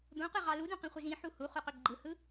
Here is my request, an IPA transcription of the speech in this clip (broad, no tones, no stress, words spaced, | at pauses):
d̪õqɯʁɑ ludũqĩχʷiz ĩħu huχuqø ɡ͡ǃɯhɯ